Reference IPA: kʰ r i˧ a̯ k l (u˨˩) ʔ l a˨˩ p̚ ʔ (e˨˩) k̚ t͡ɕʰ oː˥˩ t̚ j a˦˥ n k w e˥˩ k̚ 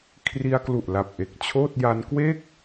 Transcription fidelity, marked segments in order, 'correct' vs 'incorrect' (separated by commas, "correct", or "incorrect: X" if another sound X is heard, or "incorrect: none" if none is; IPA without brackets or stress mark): correct, correct